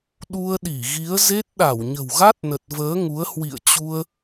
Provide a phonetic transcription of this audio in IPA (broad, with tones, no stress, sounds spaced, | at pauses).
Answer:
ɗ u˧ ə̯ ɗ i˧˩ ɣ i˨˦ ə̯ z e˦˥ t̚ ɗ a˧˩ w ɲ ə̤˨˩ w ɣ a˦˥ t̚ n ə˨˩ t̚ v əː˨˦ ŋ u˨˦ ə̯ h w ḭ˧˨ ə̯ t͡ɕ u˧ ə̯